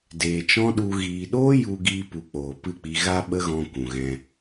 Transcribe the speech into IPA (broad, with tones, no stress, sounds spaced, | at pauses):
d eː˨ t͡ʃ ɔ̃˦ ɗ u˧ ɣ iː˨ ɗ oː˦ j u˧ ɡ iː˧ p u˨ k͡p oː˨ p ɨ˦˨ k͡p i˧ ɣ a˧ ɓ ə˦ ɣ ɔ̃˧ kʷ ũ˨ ɣ ɛ̃˧